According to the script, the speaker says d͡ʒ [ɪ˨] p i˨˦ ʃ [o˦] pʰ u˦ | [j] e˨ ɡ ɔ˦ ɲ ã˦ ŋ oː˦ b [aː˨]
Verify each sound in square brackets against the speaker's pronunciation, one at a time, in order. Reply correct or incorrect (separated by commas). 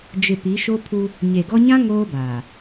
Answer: correct, correct, incorrect, correct